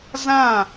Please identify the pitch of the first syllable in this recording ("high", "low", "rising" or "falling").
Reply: falling